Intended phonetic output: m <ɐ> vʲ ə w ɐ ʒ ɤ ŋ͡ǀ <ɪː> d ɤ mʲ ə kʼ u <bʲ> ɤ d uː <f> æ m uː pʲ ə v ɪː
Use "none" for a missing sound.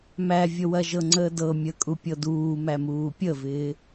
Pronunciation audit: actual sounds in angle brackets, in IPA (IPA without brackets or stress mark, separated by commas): æ, əː, pʲ, m